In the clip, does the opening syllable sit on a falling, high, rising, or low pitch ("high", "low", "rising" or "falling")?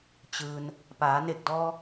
low